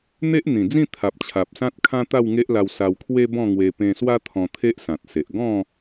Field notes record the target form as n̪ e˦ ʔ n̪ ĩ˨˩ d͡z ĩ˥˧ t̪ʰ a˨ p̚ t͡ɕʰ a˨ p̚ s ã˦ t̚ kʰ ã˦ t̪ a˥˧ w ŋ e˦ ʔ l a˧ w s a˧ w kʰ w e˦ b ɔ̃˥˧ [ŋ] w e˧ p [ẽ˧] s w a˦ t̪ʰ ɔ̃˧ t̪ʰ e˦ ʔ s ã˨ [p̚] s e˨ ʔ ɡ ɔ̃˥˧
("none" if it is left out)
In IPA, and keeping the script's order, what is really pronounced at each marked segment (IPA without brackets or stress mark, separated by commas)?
ŋ, ẽ˧, t̚